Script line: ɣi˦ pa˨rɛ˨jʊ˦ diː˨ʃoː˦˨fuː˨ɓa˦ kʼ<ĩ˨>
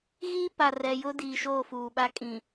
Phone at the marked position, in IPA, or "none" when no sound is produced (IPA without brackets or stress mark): ĩ˨